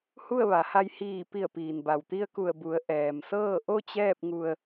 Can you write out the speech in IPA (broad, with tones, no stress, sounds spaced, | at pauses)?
h u˥˨ ə̯ ʋ a˩˧ h a˧ j h iː˧˩ p i˧˩ ə̯ p iː˩ n b a˧˩ w t̪ i˧ ə̯ k u˧˩ ə̯ b u˩˧ ə̯ ʔ ɛː˩ m s ɤː˥˨ ʔ o˥˨ t͡ɕ ɛː˥˨ p̚ ŋ u˧ ə̯